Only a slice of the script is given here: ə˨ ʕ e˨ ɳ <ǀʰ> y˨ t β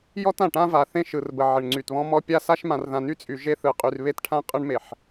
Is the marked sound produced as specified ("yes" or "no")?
no